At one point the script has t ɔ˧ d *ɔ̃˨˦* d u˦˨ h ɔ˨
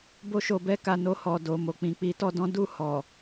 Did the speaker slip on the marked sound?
yes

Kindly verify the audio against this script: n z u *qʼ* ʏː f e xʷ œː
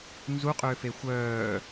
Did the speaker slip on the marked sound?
no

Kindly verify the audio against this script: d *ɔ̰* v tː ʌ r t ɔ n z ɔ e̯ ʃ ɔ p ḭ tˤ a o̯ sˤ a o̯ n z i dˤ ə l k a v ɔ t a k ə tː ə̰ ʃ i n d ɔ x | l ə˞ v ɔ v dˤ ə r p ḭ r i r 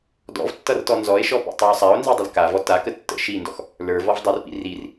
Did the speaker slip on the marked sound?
no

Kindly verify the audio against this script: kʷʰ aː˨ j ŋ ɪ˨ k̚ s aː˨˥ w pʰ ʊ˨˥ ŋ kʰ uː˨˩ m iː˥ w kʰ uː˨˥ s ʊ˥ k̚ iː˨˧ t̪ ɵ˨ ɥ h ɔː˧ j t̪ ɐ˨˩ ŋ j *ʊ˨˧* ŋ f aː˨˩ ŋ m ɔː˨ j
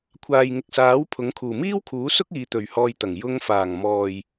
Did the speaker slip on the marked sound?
yes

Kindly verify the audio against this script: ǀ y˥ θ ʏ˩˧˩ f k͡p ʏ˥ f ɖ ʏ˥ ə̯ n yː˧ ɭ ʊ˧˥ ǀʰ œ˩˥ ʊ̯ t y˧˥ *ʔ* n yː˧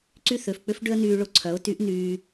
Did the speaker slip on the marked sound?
no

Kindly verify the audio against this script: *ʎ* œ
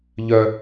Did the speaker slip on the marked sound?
no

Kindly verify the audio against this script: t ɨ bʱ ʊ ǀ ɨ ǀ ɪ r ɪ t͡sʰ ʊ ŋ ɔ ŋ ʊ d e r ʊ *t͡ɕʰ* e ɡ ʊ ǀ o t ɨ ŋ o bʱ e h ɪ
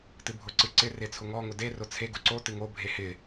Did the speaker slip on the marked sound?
yes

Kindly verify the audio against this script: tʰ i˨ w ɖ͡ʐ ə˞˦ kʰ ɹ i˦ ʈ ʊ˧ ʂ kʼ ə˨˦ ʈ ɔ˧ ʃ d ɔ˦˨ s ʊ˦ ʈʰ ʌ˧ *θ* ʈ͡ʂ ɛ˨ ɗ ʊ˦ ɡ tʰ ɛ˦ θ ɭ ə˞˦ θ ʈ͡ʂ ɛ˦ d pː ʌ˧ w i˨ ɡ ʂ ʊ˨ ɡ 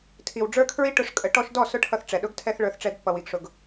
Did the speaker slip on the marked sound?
no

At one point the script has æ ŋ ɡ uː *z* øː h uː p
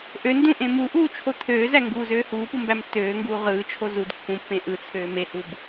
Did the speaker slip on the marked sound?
no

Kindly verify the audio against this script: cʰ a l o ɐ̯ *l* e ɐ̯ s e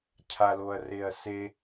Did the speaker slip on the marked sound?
yes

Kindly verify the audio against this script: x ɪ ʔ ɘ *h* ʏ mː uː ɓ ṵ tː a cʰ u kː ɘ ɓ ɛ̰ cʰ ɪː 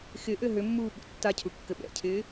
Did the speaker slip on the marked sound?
yes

